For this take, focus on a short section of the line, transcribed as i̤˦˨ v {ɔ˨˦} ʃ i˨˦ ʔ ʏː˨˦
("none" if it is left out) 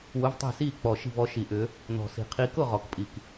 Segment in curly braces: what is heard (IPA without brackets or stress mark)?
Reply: ɔ˨˦